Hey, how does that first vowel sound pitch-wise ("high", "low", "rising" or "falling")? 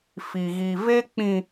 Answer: low